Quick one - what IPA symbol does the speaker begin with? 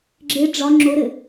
ɡ͡ǁ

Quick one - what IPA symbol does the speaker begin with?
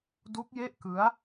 d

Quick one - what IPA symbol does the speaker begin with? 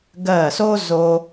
ɡ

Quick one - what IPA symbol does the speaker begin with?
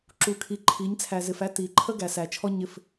ǁ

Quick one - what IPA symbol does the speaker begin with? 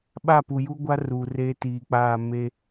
ɓ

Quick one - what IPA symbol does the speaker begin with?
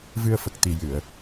v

